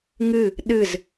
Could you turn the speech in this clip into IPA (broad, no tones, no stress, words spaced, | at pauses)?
ŋɨ | ɗɨz